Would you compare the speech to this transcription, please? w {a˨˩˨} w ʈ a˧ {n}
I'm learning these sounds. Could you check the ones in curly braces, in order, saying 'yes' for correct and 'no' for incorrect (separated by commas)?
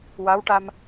no, no